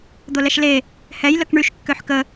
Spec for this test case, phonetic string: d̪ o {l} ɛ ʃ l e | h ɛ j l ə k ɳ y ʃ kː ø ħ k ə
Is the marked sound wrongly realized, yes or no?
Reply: no